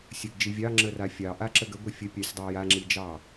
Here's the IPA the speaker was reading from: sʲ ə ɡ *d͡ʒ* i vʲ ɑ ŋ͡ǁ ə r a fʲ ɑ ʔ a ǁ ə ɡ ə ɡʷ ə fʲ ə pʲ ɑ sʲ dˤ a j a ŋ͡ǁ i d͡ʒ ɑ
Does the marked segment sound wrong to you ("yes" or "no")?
no